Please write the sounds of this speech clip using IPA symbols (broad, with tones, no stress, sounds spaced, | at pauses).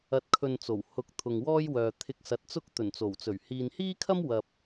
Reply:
ɐ˨ t̚ kʰ ɵ˨ n t͡s o˨˩ w h ʊ˨˥ k̚ t̪ʰ ʊ˨ ŋ w ɔː˥ j w œː˨ t̪ʰ ɪ˧ k̚ s ɐ˨ t̚ t͡s ʊ˥ k̚ t̪ ɵ˨˩ n t͡s o˨˩ w t͡s ɵ˨˩ ɥ h iː˨ n h iː˥ kʰ ɐ˥ m w ɐ˨ p̚